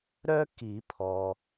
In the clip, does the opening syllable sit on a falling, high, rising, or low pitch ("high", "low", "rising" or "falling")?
high